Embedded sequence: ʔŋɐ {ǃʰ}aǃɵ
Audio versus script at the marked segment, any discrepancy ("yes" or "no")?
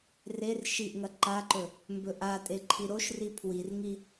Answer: yes